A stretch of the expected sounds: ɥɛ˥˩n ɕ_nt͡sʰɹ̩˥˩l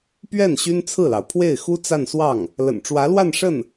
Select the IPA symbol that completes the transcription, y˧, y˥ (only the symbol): y˥